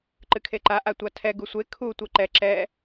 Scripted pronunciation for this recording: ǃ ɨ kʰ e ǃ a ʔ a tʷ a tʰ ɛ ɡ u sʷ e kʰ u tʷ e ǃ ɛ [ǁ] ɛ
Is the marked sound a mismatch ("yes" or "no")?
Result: no